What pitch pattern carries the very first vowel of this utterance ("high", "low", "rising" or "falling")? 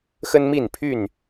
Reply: high